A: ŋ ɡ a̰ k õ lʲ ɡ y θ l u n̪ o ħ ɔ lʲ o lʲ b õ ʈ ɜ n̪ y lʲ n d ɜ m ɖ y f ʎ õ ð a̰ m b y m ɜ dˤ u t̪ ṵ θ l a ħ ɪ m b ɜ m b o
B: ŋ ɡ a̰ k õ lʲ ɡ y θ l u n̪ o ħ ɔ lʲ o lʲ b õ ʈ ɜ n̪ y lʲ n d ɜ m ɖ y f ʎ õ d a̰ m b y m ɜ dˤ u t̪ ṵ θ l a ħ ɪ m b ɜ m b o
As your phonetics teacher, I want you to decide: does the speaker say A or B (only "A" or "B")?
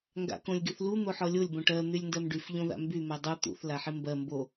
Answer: A